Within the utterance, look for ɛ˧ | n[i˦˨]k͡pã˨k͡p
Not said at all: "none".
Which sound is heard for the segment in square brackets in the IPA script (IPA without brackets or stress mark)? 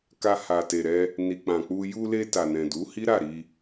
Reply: i˨